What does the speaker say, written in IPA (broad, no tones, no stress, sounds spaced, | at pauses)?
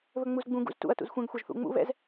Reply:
β ɵ ŋ͡m u z ɡ͡b ũ ɡ ṵ z t ṵ ɐ̯ t ṵ z xʷ ɛ̃ ɡ xʷ a ʒ θ ṵ ŋ͡m ṵ β ɛ̰ z